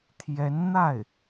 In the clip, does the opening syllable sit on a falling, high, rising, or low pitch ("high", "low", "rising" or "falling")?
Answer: rising